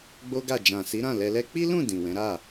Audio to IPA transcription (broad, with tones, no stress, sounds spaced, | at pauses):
ɡ͡b o˦ ɡ a˦˨ d͡ʒ ã˨ s i˨˦ ɾ ã˦˨ l ɛ˧ l ɛ˦ k͡p i˦ l ũ˦˨ d ĩ˨ w ɛ̃˨˦ ɾ a˦˨